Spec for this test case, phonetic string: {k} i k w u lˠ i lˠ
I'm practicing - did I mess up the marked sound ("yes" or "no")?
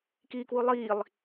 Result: no